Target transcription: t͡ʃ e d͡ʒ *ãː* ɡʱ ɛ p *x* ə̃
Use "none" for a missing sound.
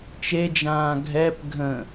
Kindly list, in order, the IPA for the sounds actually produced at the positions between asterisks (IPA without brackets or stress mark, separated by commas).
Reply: ãː, ɡʱ